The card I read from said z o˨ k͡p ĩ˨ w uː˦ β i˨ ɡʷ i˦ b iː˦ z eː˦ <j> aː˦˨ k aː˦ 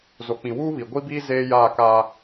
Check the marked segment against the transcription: correct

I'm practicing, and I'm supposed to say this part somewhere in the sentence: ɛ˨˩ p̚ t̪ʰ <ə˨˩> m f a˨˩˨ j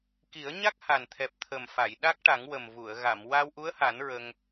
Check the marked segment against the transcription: correct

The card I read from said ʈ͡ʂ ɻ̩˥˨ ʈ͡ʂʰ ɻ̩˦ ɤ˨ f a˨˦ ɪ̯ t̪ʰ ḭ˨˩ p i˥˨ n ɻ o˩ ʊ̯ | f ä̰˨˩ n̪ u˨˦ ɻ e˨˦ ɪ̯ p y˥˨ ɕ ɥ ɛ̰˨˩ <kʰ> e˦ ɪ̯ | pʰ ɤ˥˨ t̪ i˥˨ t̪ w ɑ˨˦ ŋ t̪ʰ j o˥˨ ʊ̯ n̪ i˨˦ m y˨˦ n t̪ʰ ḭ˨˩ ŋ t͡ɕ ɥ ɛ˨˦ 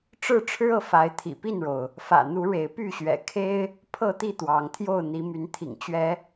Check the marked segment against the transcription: correct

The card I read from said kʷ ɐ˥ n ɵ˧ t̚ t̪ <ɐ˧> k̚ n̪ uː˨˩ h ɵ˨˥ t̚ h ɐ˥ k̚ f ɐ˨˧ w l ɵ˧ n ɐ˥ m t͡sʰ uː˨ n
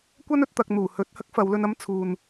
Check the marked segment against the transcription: correct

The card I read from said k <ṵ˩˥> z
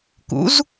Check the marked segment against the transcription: correct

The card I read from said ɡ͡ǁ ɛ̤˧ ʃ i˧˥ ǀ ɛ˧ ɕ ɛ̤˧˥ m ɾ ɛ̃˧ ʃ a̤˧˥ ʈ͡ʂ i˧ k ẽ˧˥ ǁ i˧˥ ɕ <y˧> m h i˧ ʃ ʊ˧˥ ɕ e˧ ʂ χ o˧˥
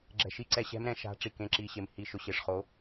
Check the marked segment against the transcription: incorrect: e˧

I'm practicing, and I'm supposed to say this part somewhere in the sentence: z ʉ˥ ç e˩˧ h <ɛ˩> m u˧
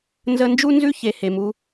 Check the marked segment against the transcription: incorrect: e˩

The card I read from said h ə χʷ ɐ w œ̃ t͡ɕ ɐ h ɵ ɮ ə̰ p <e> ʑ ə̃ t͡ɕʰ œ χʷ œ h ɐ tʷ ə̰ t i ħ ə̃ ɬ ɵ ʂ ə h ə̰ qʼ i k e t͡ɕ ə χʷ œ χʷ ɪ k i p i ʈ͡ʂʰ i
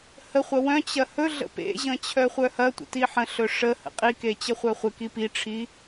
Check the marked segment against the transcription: incorrect: ḛ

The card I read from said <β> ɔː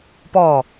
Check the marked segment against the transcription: incorrect: p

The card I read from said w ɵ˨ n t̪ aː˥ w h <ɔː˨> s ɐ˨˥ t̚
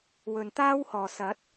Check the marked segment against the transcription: correct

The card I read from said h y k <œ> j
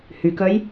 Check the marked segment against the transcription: correct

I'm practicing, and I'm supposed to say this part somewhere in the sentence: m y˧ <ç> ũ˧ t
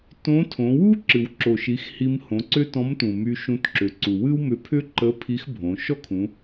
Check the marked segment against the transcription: incorrect: ʃ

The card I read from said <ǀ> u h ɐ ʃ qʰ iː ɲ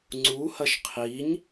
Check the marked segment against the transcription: incorrect: ŋ͡ǀ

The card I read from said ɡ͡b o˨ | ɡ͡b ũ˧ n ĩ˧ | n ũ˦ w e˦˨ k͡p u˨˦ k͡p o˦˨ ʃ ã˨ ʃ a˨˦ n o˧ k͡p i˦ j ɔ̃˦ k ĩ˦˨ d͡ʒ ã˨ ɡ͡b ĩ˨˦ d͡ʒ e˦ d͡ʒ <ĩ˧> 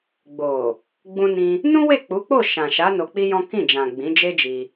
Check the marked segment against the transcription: incorrect: i˧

